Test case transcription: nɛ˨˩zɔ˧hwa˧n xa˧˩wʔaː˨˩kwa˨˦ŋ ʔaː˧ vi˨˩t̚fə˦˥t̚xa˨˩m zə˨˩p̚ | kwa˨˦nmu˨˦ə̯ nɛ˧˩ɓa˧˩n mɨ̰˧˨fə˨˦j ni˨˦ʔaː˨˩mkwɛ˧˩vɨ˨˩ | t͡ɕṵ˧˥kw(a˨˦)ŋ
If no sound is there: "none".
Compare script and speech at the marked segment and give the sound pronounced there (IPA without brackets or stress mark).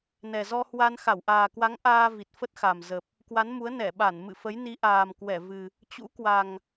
a˨˩